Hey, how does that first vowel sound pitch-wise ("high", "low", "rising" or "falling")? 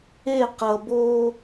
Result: falling